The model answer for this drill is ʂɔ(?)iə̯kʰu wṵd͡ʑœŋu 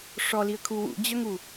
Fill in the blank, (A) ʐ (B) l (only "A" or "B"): B